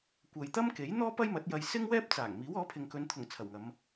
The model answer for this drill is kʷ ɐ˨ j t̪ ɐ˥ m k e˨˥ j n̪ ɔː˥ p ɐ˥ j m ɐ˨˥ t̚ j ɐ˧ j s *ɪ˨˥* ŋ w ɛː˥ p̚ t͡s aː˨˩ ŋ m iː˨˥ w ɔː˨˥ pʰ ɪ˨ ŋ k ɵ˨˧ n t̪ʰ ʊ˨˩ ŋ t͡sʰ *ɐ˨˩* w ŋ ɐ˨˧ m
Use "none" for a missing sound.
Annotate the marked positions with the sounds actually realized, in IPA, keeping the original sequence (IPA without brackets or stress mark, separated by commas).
ɪ˥, ɐ˨˩